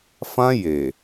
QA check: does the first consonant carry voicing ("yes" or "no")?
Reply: no